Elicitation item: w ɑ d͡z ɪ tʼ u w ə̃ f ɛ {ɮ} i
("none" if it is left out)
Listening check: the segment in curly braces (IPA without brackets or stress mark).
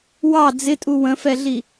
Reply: ɮ